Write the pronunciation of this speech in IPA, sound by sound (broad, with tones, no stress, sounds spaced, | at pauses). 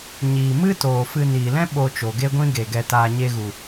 ɲ iː˨ m ɨ˦ t oː˨ f ɨ˧ n iː˨ l ɛ̃˦ ɓ o˧ t͡ʃ o˨ ɡ e˦ ɡʷ ĩ˦ ɡ e˨ ɡ ɛ˧ t aː˧ ɲ e˧ ɣ u˨